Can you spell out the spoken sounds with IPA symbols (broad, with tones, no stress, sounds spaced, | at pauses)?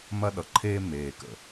m ɐ˦ ɗ ʌ˨ ǃʰ eː˦ m eː˨ k ə̰˨